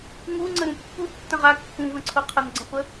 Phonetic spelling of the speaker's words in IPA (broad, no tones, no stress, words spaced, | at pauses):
ŋuŋ͡ǀə ɾũpːu tːə̃ʁa kːũvə̃ǀʰo qʰənɡ͡ǀə̃χʷə